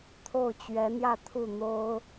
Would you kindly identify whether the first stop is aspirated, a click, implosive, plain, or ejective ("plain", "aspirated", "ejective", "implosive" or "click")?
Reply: aspirated